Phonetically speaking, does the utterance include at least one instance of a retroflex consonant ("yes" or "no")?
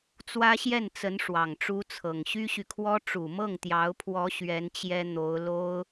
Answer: yes